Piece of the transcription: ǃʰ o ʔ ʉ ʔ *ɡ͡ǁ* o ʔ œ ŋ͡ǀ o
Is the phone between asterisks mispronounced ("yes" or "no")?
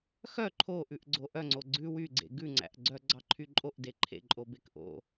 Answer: yes